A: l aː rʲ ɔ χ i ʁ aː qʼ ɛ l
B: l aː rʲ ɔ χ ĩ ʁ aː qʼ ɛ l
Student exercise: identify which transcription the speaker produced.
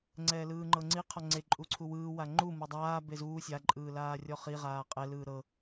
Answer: A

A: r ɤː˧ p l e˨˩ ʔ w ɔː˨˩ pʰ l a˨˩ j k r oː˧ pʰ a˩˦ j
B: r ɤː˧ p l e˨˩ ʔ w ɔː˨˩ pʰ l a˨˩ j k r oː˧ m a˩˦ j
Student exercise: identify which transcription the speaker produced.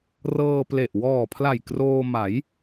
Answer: B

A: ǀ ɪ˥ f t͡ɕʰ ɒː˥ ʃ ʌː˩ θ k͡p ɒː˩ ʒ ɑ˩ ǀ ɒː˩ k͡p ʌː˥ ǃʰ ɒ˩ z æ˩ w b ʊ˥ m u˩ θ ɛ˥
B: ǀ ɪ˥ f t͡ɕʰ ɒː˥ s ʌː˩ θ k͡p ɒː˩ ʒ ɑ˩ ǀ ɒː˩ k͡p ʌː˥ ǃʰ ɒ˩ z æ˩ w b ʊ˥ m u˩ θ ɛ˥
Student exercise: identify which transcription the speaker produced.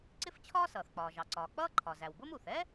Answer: B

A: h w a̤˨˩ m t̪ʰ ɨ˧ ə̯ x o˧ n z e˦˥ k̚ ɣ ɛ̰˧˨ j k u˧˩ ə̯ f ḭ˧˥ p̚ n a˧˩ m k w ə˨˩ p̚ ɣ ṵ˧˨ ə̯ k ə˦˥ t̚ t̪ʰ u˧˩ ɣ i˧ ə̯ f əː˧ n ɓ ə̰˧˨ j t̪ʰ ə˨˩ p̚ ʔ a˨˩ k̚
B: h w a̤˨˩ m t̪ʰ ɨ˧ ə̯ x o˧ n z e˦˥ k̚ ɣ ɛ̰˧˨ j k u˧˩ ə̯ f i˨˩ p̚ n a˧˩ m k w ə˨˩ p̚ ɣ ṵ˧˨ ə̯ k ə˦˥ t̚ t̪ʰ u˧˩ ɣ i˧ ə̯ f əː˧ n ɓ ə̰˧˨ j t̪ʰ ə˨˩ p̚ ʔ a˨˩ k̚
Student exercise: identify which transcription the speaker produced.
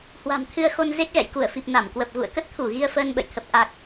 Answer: B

